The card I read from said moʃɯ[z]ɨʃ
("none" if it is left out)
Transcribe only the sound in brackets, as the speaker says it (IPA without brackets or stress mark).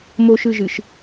ʒ